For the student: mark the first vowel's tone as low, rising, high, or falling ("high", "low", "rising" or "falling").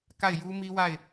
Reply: falling